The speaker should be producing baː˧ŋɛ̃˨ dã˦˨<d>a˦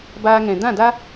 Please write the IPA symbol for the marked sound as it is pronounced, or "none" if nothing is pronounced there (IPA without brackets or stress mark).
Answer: d